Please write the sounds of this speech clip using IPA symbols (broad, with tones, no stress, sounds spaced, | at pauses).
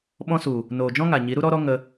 ɓ ɔ̃˧ s u˨ | n oː˨ d͡ʒ ɔ̃˦ ŋ a˨ ɲ i˨˦ ɾ u˦ ɾ ɔ˦ ɾ ɔ˦ ŋ ə˧